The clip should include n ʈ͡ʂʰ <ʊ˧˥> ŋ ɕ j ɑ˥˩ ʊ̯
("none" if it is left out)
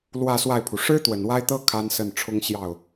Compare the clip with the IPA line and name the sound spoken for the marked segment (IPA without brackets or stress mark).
ʊ˥